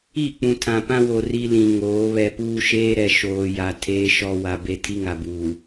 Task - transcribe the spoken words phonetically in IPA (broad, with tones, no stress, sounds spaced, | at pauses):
i˦˨ k͡p ũ˨ tʰ ã˨ p ã˦ w o˨ r i˦ l ĩ˨ ŋ oː˨˦ β ɛ˨ p uː˦ ʃ eː˦ ɾ ɛ˨ ʃ oː˨ j a˨ tʰ eː˦ ʃ ɔ˦ w a˨ b e˦ tʰ i˦ ŋ a˨ b uː˨